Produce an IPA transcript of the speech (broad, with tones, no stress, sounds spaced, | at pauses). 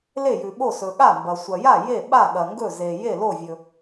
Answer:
l e˥˩ j ʉ˨ ɓ o˥˩ s ɵ˨ ɠ a˥˩ m b ɐ˨ sʷ ɐ˨ j a˥˩ j e˥˩ ɓ a˥˩ ɠ ɐ˨ ŋ ɡ ɵ˥˩ z e˨ j e˥˩ l o˥˩ vʲ ɵ˨